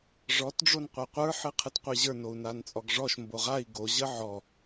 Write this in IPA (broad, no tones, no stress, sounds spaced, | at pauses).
ʐ ɔ t ɖ͡ʐ o n qʷ a qʷ ə˞ ħ ɨ qʰ ɨ t qʷ ɨ ʑ ə˞ n o u̯ n a n t͡sʼ ɔ ɡ ʐ ɔ ʃ m b o ʁ a i̯ ɡ o ʑ ə ʕ ɔ